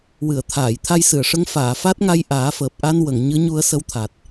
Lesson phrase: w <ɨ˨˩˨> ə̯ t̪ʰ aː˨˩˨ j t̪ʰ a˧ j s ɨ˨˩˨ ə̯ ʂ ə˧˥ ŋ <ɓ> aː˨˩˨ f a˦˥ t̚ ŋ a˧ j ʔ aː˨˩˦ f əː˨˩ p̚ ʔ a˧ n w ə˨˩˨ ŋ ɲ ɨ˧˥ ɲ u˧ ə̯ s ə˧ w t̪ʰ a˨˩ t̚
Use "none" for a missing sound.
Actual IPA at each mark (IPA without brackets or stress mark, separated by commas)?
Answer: ɨ˨˩˨, f